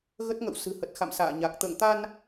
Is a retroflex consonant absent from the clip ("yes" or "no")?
yes